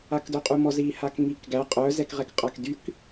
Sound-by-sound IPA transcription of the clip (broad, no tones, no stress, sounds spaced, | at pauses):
a k d œ qʼ u m ɔ z i h a k ŋ i k ɡ æ qʼ œ z ɛ k ʁ ɛ k qʼ a k d y k